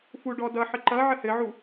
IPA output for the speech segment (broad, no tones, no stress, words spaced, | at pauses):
fu ɖɔdʌ ħəǃʌ ʕəhɘʕu